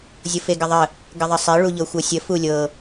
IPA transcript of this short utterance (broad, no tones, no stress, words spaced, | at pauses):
zʲɤfeɡəðˤə | ɡəðˤəsˤe ɭuʎɤxʷɤsʲə fulʲɤ